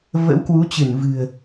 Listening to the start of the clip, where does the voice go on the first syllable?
rising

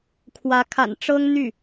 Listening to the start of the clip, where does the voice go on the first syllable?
rising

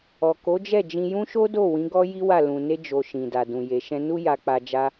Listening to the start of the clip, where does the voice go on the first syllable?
low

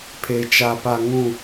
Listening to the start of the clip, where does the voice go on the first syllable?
high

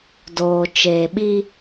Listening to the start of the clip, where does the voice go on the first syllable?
low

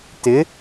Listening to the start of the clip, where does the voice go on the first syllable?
rising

